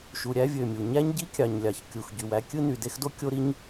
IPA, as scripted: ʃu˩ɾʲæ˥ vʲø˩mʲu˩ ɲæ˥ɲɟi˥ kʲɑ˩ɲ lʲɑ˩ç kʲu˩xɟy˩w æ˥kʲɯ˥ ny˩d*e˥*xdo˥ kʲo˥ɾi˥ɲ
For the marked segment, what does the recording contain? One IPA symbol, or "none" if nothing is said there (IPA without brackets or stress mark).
e˥